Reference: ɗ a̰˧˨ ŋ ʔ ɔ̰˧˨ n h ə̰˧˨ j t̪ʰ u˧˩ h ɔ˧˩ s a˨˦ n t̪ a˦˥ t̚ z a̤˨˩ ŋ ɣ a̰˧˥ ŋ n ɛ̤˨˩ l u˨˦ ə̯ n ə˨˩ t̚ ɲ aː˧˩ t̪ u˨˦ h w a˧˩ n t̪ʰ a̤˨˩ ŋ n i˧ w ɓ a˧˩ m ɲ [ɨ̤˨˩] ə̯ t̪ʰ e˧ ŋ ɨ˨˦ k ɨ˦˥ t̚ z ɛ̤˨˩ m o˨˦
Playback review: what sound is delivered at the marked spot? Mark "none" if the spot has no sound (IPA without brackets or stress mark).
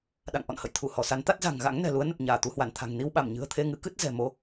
ɨ̤˨˩